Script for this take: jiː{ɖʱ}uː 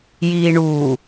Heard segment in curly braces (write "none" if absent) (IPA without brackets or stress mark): ɳ